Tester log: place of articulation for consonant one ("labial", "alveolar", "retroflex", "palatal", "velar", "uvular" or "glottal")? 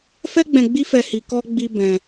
labial